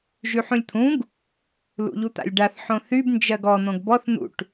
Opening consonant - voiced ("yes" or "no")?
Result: yes